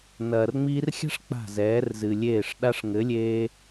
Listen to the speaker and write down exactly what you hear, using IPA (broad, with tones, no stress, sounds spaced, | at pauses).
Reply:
n ɐː˨ r ŋ͡m iː˧ r xʲ a̤˦ ʂ k͡p a̤˦˨ z ɛː˨˦ r z ɨ˨ lʲ eː˦˨ ʂ ɗ a˧ ʂ ŋ ɘ˨˦ lʲ eː˧